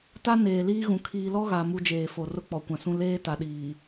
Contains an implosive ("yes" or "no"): yes